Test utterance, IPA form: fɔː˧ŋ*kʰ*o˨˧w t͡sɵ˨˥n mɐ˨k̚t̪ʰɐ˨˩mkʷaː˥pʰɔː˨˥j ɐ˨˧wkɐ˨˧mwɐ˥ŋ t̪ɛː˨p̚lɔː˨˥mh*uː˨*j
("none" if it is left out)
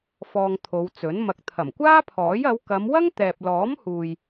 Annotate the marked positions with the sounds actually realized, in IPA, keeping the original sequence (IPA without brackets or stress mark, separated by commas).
t̪ʰ, uː˨